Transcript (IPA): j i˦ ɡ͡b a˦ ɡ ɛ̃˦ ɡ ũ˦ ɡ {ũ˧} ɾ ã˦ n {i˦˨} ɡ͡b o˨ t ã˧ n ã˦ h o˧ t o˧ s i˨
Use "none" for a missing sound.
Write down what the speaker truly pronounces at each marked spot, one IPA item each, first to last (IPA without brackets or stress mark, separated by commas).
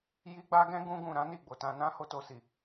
ũ˧, i˦˨